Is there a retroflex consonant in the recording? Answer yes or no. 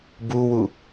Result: no